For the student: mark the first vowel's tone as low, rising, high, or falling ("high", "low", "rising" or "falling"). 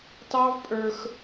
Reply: high